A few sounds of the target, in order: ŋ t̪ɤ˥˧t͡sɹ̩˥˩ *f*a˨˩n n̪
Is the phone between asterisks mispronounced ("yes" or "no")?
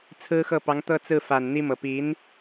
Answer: no